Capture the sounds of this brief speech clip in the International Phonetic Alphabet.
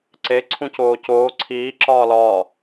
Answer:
ǀe ǀʰũcoːcoː ǀʰiː ǁɒːlɒː

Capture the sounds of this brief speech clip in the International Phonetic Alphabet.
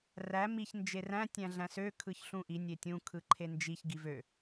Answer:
ræ miç nd͡ʒeræ̃ tʲæ̃ɮæ̃sø kʰɯçɬũʔi nʲetʲũ kʰɯǃʰend͡ʒiç ɡivø

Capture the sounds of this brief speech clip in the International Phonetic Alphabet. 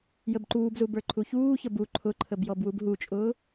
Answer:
jəbǃuːbzu bə˞ǃʰuçuːçə bu ǃʰʊǃʰəb jɔbwubɦut͡ʃʼʊː

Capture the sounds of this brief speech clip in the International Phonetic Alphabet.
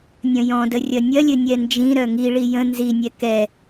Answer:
nʲɐ̃jɔ̃də rʲɐnʲɐlʲɘ nʲɛnd͡ʒĩɾœ ŋiɭi jə̃ nzinʲɛ kɛ

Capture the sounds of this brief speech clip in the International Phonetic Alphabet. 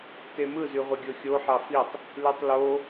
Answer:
temɯ zyʁʷiɡʲoxʲo ħɑfitˤ | lytˤlo

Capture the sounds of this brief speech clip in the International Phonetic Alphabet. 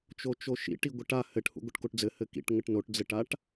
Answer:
t͡ʃot͡ʃoʃḭʈ iɡʷəʈa hɘʈhṵ ɡʷəʈkoʈd͡zɘ hɘkḭʈŋəʈ noʈd͡zɘʈaʈ

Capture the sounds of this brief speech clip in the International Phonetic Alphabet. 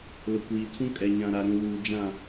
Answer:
lʊ˨kʷiː˨tʰũ˦ kʼɛ˨ɲã˨ɾa˨ɾũ˨ wuː˨ d͡ʒã˦˨

